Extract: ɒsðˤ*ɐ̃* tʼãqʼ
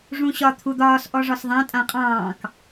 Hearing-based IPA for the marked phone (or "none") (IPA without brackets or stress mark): ã